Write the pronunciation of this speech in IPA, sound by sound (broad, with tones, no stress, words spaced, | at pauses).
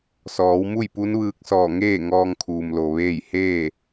sɔː˩˧w mu˥˨jpu˧˥nʋɯː˧k̚sɔː˧˩ ŋeː˥˨ ŋɔː˧ŋ kʰuː˩m lo˩ ʋeː˥˨j heː˥˨